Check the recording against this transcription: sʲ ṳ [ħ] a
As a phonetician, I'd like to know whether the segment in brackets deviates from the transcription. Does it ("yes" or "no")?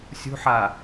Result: no